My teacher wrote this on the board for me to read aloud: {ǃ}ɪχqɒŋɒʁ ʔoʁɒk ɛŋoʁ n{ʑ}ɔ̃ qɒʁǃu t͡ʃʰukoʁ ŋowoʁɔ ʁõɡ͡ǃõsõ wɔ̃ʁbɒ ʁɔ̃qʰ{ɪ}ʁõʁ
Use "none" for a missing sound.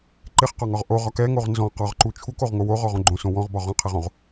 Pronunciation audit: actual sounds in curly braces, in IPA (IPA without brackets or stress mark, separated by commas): ǃ, z, ɛ